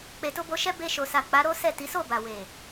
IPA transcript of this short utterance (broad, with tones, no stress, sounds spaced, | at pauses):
k͡p e˨ t o˧ b o˧ ʃ ɛ˦ b e˧ ʃ o˨ s a˨ k͡p a˨˦ ɾ o˦ s ɛ˦˨ t i˨˦ s o˦˨ b a˨ w e˨